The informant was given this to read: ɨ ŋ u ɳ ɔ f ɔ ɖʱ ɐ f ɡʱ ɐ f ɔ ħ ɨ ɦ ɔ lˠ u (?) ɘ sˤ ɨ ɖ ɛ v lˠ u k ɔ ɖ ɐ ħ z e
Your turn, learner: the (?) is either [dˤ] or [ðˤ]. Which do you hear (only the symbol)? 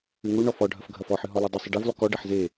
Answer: dˤ